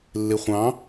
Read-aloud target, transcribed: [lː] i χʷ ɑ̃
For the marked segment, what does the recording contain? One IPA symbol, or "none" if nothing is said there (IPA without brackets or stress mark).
lː